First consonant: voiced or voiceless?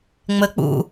voiced